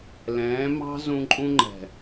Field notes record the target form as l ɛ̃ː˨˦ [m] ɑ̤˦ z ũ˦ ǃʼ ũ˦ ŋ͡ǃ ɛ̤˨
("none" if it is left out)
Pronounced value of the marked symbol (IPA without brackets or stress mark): m